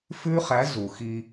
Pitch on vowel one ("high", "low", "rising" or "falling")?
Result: high